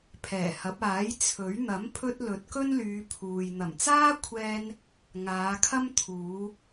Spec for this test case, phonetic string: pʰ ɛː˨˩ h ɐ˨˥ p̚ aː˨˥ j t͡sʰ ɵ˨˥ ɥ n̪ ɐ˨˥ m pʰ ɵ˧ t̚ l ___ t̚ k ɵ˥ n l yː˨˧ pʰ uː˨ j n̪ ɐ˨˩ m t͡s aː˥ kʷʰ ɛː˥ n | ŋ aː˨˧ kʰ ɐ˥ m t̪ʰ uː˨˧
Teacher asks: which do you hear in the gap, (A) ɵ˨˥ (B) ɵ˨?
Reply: A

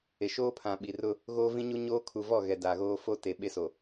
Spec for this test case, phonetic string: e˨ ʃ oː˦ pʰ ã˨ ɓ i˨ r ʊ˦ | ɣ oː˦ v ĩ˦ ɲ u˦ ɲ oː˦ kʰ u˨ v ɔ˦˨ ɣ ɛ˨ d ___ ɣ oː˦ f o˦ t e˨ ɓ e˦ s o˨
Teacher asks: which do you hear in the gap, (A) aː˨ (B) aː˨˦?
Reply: A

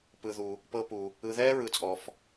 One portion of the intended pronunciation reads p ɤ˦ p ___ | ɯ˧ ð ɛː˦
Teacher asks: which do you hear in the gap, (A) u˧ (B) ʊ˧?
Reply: A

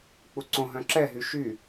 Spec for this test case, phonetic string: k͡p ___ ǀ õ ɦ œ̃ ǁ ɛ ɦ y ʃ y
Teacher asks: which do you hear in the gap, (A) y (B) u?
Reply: B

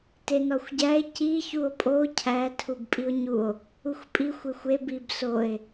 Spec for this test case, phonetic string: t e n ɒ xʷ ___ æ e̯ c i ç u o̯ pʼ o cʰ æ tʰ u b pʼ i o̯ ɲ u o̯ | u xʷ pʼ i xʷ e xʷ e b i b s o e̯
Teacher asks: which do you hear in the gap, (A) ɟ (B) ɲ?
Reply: A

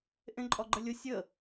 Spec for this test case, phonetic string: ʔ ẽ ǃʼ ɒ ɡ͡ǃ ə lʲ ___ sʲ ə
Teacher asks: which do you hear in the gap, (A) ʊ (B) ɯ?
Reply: A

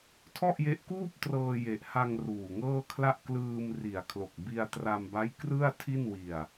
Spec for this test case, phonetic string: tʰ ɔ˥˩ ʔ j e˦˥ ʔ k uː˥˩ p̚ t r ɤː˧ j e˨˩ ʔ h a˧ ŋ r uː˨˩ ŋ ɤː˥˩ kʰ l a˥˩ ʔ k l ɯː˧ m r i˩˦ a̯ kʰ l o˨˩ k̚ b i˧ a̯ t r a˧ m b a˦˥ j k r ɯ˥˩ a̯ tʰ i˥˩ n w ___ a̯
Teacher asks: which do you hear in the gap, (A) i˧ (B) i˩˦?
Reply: A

